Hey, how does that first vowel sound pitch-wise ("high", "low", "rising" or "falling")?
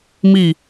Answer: falling